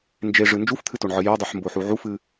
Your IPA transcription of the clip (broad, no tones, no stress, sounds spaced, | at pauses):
n d͡ʒ e ʐ ɨ n d͡ʒ u f t̪ʰ ɨ t o ɳ ʕ ɨ j œ dˤ u ħ m b o ħ u ʕ u f ɨ